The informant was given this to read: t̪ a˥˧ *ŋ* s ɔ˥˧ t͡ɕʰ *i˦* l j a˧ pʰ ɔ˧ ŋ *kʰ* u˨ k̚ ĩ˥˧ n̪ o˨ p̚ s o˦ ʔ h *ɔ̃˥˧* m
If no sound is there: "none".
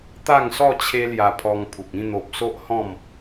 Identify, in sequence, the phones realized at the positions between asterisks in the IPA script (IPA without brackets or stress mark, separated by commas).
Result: ŋ, e˦, pʰ, ɔ̃˥˧